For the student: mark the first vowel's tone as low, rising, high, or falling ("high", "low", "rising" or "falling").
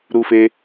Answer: low